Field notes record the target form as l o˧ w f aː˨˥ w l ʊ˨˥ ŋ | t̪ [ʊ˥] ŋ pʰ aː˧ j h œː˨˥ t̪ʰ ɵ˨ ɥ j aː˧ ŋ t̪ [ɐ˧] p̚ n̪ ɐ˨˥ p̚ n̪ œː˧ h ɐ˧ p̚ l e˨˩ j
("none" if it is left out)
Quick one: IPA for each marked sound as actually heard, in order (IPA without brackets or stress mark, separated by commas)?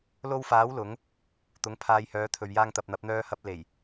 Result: ʊ˨˥, ɐ˨